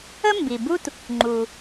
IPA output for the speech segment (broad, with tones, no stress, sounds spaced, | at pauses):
ə˥ m b i˩ b u˥ t | ŋ͡ǃ u˩